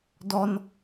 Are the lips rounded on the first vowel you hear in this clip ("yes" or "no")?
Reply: yes